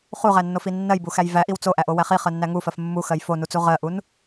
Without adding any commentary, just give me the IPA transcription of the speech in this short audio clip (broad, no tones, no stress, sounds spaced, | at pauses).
χ u ʁ æ nː o f i nː ɜ j b u x æ j v æ ʔ i w t͡s o ʔ æ ʔ o w æ χ i χ ɜ nː æ ŋ u f ɜ f mː u x ɜ j f o n u t͡s u ʁ ɜ ʔ u n